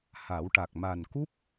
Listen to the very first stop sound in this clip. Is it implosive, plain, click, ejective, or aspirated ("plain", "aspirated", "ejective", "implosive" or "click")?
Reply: plain